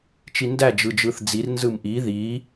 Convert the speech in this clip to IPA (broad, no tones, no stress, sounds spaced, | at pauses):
t͡ʃ i n d æ d͡ʒ ɯ d͡ʒ ɯ θ d͡z i r n z ɯ m ʔ i ð i